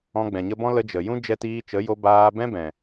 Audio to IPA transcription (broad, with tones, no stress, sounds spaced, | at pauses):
ɔ̃˧ ɡ͡b ɛ̃˨ ɲ ə˧ b ɔ̃˦ l ə˧ d͡ʒ ə˨ j ũ˦ d͡ʒ ɛ˧ t iː˧ t͡ʃ ə˨˦ j o˧ b aː˧ b ɛ̃˦ b ɛ̃˨